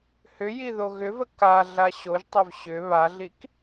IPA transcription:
h ʏ j i ð o ɣ ʏ v ə k a ɮ a ɕ o ʒ tˤ ʏ v ɕ ʏ β a ɮ i k

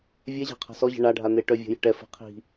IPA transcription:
vʲ ɛ ʑ a̤ qʰ a̤ s ɔ ʑ ə̤ ɳ a ɖʱ a n̪ e ʈ œ vʲ ə̤ j ə̤ ʈ ɛ f ə̤ qʰ i̤

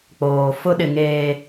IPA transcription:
k͡p oː˨ f ʊ˦ ɗ ɪ˨ ŋ eː˨

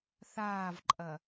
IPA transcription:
θ aː v ǃʼ ɐ

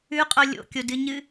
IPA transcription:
ʉ qʼ o lʲ o̰ kʲ o d ɨ ɲ ɨ

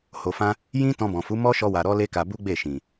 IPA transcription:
h o˧ f ã˦ | j ĩ˦ t ɔ̃˧ b ɔ̃˨ f u˨˦ m ɔ˦ ʃ ɔ˧ w a˨ ɾ ɔ˧ l e˦ k a˧ b u˦ ɡ͡b e˦˨ ʃ ĩ˨

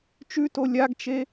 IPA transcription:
t͡ʃ ʉ t o lʲ a ɡ t͡ʃ e

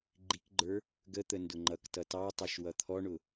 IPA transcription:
ɡ͡ǃ i k ɡ͡ǃ ə˞ | ɡ ə t̪ ə n d ʊ ŋ͡ǃ ʌ k t ʌ t ɑ tˤ ɑ ʃ w ʌ t̪ʰ ɔ ɳ ʊ

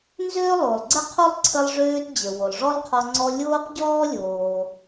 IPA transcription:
n z øː˥ lˠ o˩ lˠ ɡ͡ǀ ə˥ qʰ o˥ lˠ ǀʰ ə˧ lˠ ʐ øː˧ t d͡ʑ ə˩ w o˩ lˠ ʐ ɔ˥ lˠ qʰ ɔ˧ ŋ͡ǀ ɔ˧ lʲ oː˥ q ɟ ɔː˥ lʲ oː˩

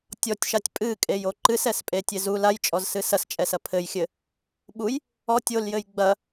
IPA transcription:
tʲ ɔ tʲ ʃ a tʲ pʼ ɨ kʼ e j o ǃ ɨ s ɛ s pʼ e tʲ e z u l a j t͡ʃʼ ɔ z s ɨ s ɐ s t͡ʃʼ ɛ s ɐ pʰ ɘ j xʲ ɘ | ɓ u j | ɔ tʲ o l j ɘ j ɡ͡b ɐ

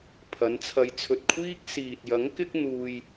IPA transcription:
pʰ ɐ˨˧ n t͡sʰ ɐ˧ j t͡sʰ ɵ˧ t̚ kʷʰ iː˥ k̚ s iː˨ t̚ j ɐ˨˥ ŋ k ɪ˥ k̚ n̪ uː˧ j

